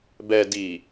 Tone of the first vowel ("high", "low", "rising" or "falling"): low